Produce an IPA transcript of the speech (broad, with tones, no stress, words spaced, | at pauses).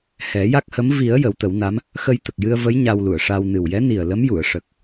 hɛ˨˩˦ja˦˥k̚hə˧˥m vi˨˩˦ə̯ jə˨˩˦wt̪ə˨˩˦wna˧˥m | xə˧jt̪ə˨˩k̚jɨ˧ə̯və˧˥j ɲa˧wlu˨˩˨ə̯ʂa˧w nɨ˨˩wjɛ˧˥ni˨˩ə̯ lə˧˥m ju˨˩˨ə̯ʂə˨˩k̚